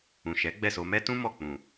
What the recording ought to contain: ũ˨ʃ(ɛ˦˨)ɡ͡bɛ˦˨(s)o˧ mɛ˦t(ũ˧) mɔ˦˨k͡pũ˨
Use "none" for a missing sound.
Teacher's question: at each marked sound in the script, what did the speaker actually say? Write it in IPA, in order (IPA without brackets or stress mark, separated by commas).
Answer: ɛ˨˦, s, ũ˦